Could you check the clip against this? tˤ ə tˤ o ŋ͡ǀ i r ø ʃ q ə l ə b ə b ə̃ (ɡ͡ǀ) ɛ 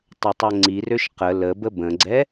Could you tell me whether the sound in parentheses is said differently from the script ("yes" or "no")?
no